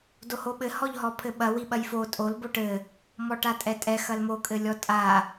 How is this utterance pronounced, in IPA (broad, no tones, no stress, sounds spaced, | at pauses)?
d o h o ɓ ɘ h ɔ ʎ ɦ ɔ pʰ ɘ ɓ ɐ w i ɓ ɐ j f o tʼ o l b o ʈ ɘ | m ɔ ʈ a tʼ ɛ tʼ ɛ x ɐ l m o kʼ ɘ lʲ ɔ tʼ a